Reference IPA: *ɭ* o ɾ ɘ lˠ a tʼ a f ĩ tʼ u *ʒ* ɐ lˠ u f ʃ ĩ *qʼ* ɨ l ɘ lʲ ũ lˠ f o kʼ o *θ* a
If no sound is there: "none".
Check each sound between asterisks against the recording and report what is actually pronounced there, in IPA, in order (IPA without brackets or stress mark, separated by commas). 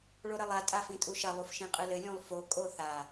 ɭ, ʃ, qʼ, θ